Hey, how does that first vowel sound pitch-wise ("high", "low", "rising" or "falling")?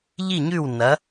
falling